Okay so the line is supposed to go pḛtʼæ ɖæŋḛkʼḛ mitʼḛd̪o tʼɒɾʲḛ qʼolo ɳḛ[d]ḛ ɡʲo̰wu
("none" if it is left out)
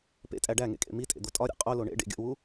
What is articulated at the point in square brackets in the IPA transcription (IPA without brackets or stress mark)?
ɖ